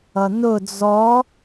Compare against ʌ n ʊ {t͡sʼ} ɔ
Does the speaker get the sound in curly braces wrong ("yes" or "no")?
yes